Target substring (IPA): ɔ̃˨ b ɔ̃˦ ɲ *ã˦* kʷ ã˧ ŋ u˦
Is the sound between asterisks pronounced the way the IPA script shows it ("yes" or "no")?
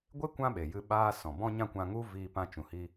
yes